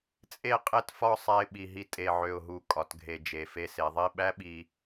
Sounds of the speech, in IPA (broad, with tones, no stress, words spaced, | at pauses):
t͡sʼe˥˧qʼe˥˧tfɒ˥˧ sˤæ˧ɪ̯ɓi˨˩ ɦi˧ tʼe˨˩ʕø˨˩ʊ̯ɦu˨˩ kʼɒ˩˧tɡʱe˨˩ d͡ʒe˨˩ fe˧se˩˧ðˤi˥˧ ɓæ˥ɓi˧